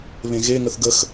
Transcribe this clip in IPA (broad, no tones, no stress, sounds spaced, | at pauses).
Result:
β ẽ ɣ e ŋ ə θ ɡ ə x